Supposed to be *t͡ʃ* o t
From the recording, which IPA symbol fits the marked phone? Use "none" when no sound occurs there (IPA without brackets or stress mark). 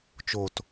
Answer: t͡ʃ